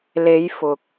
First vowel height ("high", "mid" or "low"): mid